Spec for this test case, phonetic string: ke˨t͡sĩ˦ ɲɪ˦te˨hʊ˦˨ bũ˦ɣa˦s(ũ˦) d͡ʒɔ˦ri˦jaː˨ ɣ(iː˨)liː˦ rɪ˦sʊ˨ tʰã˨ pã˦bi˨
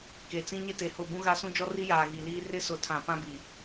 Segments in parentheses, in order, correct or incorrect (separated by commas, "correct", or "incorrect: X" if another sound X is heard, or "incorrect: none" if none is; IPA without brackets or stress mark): correct, incorrect: i˨